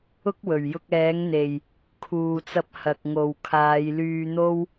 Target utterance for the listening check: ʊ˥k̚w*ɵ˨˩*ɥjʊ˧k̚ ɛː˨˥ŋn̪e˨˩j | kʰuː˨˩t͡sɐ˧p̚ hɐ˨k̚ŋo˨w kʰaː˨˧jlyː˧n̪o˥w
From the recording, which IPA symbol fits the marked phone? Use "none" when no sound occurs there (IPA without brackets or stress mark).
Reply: ɵ˨˩